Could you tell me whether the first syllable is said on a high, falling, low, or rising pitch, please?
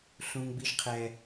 high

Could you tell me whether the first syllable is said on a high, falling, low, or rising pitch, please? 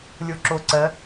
low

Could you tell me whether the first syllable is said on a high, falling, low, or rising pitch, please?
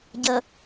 low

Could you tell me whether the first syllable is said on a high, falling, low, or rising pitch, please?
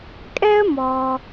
high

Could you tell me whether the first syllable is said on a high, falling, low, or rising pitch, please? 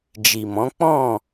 low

